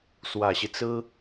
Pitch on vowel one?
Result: low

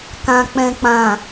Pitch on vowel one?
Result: low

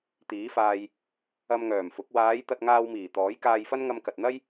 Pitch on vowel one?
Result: rising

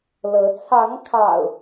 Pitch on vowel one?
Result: rising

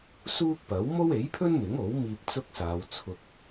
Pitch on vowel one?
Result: high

